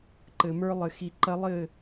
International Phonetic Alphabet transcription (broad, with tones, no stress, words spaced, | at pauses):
ǃɘ˧mə˞˥ lˠɘ˧xi˧ǃɐ˥ lˠɘ˥˧